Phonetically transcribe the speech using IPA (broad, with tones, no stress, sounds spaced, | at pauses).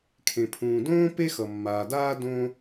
kʰ ẽ˩ pʰ ũː˩ d õː˦ p e˦ x ʌ˩ mː aː˩ d aː˦ d õ˦